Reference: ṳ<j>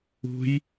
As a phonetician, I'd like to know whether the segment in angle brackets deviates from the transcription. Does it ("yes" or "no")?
no